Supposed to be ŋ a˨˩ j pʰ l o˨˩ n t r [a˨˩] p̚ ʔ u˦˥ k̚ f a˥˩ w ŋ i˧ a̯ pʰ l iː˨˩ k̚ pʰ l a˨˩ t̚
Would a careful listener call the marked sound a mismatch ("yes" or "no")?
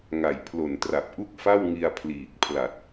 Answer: no